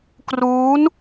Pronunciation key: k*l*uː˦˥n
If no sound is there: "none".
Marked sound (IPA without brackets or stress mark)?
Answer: r